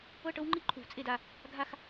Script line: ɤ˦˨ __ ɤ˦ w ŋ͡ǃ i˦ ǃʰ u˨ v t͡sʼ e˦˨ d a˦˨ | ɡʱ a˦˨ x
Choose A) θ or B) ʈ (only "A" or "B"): B